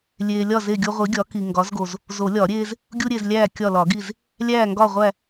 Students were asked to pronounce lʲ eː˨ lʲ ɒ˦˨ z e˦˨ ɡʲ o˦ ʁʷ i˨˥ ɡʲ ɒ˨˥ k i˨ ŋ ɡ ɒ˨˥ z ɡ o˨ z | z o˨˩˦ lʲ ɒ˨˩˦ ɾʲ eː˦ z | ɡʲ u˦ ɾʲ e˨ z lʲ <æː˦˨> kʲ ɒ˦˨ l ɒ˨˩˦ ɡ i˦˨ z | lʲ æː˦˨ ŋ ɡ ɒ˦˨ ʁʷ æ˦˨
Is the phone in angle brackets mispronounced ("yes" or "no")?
no